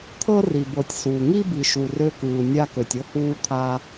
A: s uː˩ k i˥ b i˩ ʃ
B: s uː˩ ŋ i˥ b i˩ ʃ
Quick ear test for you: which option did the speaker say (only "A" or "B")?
B